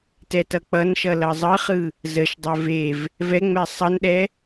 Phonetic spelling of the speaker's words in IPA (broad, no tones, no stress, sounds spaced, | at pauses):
t ɛ t ʌ k͡p ʌ n ʃ ʌ l ʌ zˤ ɯ χ ɯ | z ə ʃ dˤ ɛ v e v | v ɛ ŋ͡m ɛ sˤ ʌ n ɗ ɛ